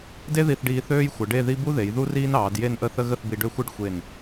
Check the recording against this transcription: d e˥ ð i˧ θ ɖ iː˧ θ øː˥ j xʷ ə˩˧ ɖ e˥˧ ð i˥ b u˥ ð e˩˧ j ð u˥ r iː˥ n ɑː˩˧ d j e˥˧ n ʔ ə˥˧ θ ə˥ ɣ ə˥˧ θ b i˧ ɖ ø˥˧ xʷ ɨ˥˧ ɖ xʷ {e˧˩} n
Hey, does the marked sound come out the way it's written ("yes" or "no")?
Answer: yes